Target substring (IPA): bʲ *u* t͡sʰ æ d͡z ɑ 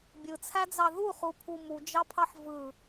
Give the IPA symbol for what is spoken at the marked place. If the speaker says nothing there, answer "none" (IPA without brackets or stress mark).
ɯ